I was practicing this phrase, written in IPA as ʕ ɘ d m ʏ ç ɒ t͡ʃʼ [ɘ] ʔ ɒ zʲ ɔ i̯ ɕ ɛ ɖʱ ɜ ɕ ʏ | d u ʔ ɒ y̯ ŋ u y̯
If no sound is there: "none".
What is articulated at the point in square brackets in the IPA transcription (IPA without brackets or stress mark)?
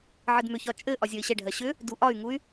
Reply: ɘ